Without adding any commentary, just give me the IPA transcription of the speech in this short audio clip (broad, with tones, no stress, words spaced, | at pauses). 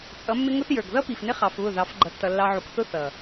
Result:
t͡sʼʌ˨˦mːɪ˦ŋʊ˦θjə˞˨ɡ ðʌ˦pi˨fnɪ˦ χɑ˧fβʊ˦˨ ðɑ˨˦fɡ͡ǃʌ˧tːʌ˧ lːɑ˧ʕu˨kθʊ˦ θʌ˨